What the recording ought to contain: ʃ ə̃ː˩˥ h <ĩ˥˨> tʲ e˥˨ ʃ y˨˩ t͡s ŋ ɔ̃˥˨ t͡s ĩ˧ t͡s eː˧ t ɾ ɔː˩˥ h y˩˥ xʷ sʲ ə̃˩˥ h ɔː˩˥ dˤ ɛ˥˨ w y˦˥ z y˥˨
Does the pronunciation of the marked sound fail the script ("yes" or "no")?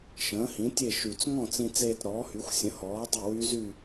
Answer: yes